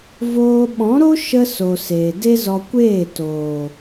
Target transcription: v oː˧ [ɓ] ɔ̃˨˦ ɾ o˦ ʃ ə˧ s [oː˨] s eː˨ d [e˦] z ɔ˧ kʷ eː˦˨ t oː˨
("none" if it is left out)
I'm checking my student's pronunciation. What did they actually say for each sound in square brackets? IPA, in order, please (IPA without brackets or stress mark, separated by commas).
ɓ, o˨, e˦